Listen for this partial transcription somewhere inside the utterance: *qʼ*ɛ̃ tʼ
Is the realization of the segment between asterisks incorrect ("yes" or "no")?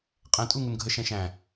no